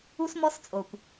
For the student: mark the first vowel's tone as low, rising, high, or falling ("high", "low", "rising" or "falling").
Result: high